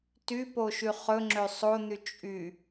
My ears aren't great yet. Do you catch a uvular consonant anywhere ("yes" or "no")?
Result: yes